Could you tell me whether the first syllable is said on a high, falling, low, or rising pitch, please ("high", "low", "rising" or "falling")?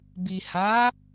low